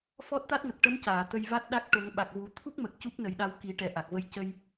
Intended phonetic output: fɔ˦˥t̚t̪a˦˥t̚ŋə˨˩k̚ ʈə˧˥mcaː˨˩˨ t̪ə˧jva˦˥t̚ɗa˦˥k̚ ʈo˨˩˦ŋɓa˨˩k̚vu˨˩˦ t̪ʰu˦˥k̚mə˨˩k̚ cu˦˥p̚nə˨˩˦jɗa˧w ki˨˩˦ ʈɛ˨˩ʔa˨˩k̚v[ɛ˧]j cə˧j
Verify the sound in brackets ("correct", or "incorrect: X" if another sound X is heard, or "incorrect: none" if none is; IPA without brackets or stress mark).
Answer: incorrect: ə˧